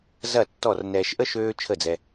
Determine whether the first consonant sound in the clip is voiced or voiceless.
voiced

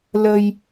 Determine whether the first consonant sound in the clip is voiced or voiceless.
voiced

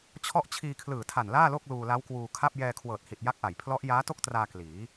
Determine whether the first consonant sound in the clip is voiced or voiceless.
voiceless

